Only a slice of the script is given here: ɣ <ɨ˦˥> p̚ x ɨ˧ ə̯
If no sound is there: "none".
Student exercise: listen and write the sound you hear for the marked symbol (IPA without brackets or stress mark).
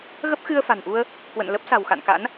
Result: ə˦˥